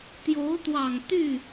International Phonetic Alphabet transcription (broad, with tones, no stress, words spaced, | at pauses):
t̪jo˧˥ʊ̯t̪wɑ˨˩ŋ t̪y˥˩